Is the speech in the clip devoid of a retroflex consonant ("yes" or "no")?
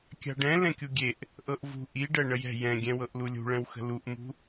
no